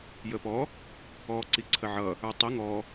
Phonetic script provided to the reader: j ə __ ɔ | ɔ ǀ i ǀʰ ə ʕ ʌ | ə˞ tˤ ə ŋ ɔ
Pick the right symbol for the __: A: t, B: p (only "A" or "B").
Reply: B